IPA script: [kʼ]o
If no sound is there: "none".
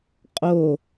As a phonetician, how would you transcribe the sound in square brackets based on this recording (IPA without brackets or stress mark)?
qʼ